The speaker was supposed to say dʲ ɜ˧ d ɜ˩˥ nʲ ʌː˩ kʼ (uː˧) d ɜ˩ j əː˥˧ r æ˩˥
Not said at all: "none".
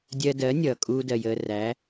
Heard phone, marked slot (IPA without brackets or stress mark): uː˧